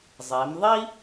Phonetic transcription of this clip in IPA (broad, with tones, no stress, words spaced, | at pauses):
zˤe˩˧mðˤi˥